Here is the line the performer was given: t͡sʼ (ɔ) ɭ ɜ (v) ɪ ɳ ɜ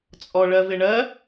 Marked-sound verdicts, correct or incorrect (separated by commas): correct, correct